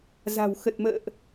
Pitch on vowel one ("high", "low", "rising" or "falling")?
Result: low